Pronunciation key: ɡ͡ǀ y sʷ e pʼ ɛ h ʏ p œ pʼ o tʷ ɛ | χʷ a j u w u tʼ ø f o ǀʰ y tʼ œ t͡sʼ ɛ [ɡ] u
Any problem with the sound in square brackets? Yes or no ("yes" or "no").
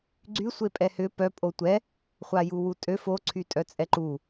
yes